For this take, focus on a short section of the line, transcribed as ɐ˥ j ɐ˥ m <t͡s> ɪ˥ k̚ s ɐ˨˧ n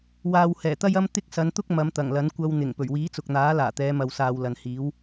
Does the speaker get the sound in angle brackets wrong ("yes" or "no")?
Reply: yes